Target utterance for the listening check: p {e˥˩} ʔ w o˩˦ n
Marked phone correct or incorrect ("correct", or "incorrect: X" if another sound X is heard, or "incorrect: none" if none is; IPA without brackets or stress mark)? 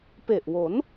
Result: incorrect: e˨˩